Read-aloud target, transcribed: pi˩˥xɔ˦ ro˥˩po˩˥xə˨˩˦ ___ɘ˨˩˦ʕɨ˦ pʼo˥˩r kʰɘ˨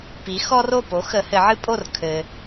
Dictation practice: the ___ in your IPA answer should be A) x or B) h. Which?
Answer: B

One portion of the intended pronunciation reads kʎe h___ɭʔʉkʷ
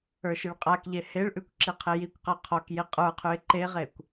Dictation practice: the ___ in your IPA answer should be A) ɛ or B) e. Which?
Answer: B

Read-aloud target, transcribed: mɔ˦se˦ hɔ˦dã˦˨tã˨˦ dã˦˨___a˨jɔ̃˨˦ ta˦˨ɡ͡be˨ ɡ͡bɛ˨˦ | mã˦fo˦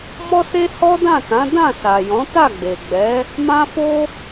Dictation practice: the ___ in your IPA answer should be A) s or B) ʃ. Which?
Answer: A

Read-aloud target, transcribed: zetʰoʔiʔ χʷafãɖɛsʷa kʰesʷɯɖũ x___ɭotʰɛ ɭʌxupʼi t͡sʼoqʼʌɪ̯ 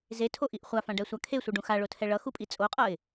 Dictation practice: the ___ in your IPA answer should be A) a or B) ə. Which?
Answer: A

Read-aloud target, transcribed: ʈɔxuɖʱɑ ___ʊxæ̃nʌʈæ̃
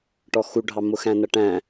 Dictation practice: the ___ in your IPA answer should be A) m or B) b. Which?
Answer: A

